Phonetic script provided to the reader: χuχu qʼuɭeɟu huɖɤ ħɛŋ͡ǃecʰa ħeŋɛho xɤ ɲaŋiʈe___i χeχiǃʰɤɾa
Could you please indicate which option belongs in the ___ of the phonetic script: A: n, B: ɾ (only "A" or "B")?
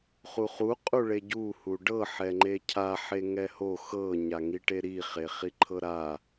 B